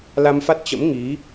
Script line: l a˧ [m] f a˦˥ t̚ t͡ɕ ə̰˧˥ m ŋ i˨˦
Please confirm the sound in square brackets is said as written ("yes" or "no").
yes